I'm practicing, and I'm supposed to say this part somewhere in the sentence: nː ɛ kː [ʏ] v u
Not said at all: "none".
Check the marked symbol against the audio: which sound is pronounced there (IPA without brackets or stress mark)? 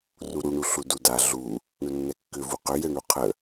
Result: ʏ